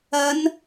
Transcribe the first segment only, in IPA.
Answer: ɐ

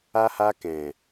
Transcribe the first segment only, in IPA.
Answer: a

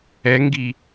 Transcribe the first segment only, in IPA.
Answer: ɛ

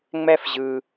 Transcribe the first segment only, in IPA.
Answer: ŋ͡m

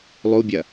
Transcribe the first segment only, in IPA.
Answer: lˠ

